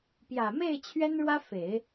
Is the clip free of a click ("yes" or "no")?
yes